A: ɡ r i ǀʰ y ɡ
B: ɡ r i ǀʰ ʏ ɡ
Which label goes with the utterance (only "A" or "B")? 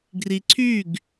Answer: A